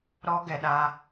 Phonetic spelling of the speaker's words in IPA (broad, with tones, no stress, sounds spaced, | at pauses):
ɾ ɔ˧ ɡ ɛ˨ ɗ a˧